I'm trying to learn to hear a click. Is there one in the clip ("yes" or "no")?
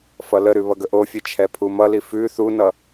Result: no